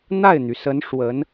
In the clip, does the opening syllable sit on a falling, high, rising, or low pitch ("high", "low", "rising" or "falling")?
falling